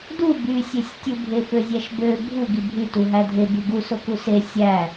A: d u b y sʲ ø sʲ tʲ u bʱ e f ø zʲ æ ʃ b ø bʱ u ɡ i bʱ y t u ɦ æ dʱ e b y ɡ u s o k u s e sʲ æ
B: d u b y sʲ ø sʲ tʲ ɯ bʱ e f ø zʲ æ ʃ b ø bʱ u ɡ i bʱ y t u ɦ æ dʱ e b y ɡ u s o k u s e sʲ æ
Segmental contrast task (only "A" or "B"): B